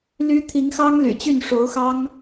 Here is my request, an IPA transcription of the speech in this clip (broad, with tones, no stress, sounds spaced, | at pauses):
l y˥ t̪ʰ i˧˥ ŋ x ɑ˥ ŋ l y̰˨˩ t͡ɕ y˥˩ n ʂ o˧˥ ʊ̯ x ɑ˥ ŋ